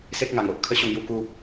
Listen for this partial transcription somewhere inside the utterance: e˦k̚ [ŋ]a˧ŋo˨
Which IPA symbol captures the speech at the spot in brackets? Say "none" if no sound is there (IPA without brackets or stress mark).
ŋ